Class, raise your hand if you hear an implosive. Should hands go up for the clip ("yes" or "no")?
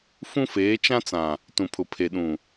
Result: yes